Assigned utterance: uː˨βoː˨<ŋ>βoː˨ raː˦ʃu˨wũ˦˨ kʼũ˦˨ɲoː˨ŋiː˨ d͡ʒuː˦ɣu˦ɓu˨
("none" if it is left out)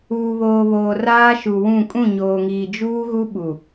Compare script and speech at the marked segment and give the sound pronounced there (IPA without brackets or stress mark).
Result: none